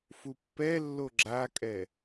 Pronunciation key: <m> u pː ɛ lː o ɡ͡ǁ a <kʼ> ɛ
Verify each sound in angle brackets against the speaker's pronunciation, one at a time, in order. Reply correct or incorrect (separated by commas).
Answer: incorrect, correct